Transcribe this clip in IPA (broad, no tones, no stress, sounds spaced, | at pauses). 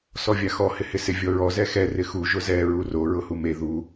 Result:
s ɔ vʲ a x ɔ h ɪ h ɪ s ɪ vʲ ɔ ɹ ɔ z ɛ x ɛ r ɪ x u ʒ ʊ z ɛ ɹ u r o ɹ ʊ h u m e ð u